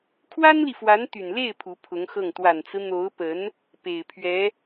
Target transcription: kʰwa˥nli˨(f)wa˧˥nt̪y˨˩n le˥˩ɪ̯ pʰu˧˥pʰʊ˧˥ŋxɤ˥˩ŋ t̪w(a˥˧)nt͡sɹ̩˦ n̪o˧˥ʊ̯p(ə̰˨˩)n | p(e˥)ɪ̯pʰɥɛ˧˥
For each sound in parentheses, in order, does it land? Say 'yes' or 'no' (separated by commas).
yes, no, no, no